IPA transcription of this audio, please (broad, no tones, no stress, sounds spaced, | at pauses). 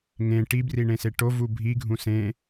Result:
ŋ ẽ ʈ i b r i ɳ ẽ s e ʈ o v u bʱ i ɡʱ ũ s ẽ